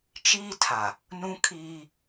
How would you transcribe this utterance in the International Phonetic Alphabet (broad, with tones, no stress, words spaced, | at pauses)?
t͡ʃiː˦tʰa˨ | nũ˦kʰiː˦